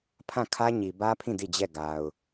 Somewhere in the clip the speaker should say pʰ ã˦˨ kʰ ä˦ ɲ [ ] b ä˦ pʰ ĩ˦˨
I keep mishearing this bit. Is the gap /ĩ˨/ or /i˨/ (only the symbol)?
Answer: i˨